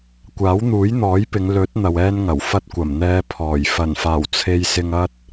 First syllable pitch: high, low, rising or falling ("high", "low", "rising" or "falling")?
rising